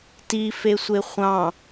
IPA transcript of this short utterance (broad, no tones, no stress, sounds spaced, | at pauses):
t i f e sʷ e χʷ ɑ̃